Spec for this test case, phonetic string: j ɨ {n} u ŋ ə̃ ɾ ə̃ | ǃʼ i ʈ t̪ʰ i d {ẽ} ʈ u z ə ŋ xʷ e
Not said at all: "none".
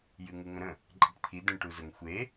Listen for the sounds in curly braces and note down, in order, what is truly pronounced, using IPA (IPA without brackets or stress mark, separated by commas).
ŋ, ẽ